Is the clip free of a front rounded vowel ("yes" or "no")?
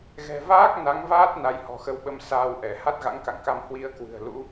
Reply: yes